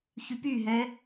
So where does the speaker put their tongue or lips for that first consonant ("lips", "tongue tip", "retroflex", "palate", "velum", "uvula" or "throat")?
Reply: palate